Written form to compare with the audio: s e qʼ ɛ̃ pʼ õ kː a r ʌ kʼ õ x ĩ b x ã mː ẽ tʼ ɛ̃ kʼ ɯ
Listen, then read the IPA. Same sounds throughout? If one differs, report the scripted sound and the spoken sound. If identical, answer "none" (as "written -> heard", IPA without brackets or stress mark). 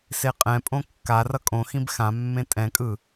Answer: none